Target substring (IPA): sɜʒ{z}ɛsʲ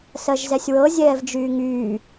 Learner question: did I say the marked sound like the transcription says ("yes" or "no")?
yes